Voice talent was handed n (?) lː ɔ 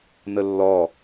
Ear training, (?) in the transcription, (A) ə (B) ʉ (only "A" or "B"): A